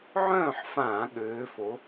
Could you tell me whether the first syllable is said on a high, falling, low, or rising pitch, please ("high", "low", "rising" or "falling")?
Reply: falling